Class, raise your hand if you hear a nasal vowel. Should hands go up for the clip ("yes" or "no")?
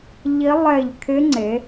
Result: no